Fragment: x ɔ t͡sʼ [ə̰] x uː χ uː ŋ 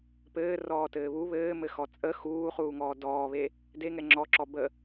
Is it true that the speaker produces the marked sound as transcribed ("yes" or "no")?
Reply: no